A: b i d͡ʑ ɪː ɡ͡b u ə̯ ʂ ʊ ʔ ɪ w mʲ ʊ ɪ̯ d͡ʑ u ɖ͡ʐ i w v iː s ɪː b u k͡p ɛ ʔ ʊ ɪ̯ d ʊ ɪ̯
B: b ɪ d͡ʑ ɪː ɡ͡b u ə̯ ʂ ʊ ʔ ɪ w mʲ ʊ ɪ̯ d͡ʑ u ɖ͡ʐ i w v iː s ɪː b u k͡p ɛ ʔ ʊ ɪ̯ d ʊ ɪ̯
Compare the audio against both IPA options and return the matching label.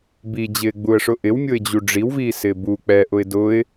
A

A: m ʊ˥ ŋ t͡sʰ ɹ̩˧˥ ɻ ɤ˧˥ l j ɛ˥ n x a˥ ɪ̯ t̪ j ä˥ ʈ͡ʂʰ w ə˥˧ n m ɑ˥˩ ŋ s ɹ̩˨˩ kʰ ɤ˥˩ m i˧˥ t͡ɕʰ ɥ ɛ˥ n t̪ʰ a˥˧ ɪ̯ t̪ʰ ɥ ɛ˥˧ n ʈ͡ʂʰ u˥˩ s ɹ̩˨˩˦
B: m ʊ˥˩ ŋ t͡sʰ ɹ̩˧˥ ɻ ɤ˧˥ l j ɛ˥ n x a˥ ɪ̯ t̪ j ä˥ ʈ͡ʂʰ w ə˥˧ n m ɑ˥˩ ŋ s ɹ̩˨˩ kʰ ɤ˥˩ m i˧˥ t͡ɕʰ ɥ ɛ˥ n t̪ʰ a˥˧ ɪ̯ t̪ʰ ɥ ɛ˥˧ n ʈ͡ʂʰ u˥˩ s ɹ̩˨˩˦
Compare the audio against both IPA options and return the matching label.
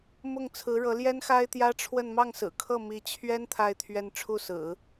B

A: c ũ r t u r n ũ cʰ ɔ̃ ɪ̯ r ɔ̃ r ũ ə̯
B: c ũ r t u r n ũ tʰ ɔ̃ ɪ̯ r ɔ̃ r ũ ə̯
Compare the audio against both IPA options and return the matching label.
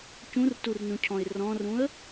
A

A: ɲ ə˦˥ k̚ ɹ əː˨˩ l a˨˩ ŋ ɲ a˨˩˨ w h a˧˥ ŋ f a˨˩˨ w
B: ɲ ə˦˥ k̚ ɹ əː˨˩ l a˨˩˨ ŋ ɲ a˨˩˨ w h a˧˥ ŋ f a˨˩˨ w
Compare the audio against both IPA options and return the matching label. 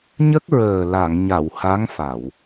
B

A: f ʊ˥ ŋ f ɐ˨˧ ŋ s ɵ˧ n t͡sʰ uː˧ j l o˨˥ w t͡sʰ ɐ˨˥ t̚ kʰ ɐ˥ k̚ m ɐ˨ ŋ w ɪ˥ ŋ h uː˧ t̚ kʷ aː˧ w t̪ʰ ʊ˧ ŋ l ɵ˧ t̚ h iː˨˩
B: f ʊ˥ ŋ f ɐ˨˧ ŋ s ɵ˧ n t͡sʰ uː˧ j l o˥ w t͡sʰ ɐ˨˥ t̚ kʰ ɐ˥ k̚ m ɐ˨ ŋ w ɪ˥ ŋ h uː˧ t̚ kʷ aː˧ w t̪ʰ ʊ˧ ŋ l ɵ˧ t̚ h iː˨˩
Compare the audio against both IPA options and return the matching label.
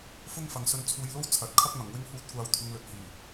B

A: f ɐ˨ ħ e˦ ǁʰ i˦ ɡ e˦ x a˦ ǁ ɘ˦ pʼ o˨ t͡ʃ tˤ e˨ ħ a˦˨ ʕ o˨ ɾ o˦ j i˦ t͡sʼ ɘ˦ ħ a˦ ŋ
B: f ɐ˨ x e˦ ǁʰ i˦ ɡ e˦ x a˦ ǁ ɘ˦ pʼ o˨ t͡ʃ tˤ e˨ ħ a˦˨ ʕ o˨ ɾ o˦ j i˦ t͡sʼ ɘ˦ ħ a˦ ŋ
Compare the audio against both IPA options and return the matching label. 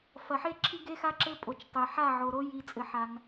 A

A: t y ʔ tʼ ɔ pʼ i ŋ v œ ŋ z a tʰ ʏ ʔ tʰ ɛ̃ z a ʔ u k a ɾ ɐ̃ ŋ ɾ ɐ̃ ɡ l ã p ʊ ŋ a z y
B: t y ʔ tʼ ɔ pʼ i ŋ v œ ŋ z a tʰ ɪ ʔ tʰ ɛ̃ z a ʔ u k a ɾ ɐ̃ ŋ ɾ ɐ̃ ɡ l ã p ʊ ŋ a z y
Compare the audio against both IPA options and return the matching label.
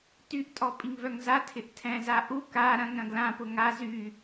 B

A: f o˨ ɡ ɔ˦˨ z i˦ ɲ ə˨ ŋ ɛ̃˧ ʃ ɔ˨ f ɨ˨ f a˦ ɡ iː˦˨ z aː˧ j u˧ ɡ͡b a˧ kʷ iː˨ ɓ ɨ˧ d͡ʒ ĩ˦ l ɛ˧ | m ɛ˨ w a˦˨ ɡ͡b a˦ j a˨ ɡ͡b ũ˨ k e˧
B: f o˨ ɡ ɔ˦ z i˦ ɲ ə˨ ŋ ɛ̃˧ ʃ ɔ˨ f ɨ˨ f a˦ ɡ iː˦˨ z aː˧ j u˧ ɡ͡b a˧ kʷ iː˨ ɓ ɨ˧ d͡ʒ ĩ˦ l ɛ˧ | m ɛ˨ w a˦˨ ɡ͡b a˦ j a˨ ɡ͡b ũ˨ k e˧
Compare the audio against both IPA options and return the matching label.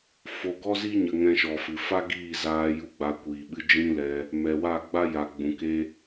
B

